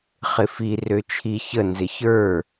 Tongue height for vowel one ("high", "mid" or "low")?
high